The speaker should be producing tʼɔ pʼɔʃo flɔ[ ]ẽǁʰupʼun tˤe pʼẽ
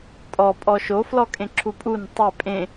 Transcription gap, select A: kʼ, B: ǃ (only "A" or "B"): A